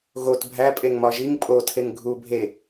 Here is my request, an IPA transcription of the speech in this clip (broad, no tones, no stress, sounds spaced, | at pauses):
ɣ o t bʱ æ pʼ e ŋ m ɒ ʒ i ŋ pʼ o tʰ e ŋ ɡʱ u bʱ e